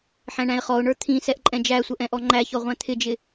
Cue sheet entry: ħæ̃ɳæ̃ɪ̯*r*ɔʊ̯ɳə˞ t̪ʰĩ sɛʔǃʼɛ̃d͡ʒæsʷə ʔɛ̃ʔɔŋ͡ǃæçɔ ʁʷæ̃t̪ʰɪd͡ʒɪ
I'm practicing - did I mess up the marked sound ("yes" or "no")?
yes